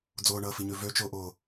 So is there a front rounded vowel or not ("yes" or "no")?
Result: yes